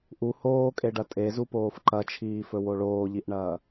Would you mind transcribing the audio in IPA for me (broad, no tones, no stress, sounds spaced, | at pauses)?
ʔ u h oː kʼ e ɖ ɐ tʼ e z u p oː f ǃ ɐ t͡ʃʰ iː f ɵ w o ɭ oː ʎ i ʔ ɳ ɐː